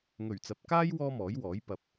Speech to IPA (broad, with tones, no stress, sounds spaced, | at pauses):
ŋ ɵ˨˩ ɥ t͡s ɐ˨ p̚ k aː˥ j w ɔː˥ m ɔː˨˥ j w ɔː˨˥ j p ɐ˨ p̚